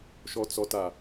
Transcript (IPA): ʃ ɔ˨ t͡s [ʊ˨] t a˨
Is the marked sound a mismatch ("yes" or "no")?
yes